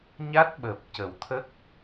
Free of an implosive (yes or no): no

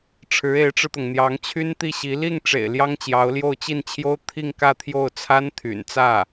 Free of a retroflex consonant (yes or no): no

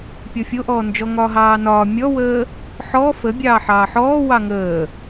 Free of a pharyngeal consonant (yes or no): no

